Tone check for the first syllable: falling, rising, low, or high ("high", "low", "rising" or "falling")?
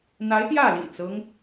rising